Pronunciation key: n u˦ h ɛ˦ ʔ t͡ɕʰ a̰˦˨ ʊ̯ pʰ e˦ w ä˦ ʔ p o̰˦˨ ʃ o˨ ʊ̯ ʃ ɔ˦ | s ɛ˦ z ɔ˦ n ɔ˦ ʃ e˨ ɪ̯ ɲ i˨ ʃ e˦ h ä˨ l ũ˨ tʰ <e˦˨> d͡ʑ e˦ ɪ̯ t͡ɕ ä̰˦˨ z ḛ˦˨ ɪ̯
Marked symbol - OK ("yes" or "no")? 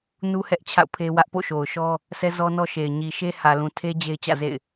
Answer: no